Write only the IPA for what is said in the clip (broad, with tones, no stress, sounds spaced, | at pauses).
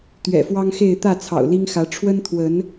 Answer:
t̪ ɥ ɛ̰˨˩ f w ɑ˦ ŋ x e˥˨ ɪ̯ t̪ ä˥˨ t͡sʰ ɑ̰˨˩ ʊ̯ l i˦ ŋ x ä˨˦ ʈ͡ʂʰ w ə˦ n t̪ʰ w ə˨˦ n